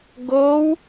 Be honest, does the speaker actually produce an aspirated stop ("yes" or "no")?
no